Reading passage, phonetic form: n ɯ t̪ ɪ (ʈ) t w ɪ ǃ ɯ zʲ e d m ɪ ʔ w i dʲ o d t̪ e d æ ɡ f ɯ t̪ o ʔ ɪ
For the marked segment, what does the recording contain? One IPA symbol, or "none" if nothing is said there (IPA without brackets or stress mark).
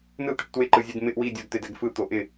ʈ